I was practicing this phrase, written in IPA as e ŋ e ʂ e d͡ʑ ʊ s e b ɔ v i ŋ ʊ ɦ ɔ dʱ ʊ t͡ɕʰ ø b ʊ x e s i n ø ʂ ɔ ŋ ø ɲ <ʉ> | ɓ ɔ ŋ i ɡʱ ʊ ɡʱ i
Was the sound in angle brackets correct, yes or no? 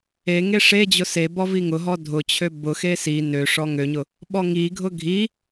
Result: no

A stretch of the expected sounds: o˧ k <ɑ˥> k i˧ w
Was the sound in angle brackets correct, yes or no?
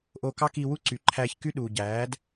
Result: yes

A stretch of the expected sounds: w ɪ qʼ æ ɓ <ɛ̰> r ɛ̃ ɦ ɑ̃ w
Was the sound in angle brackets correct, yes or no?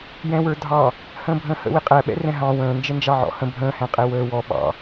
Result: yes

